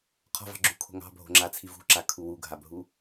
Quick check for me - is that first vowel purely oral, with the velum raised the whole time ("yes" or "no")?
yes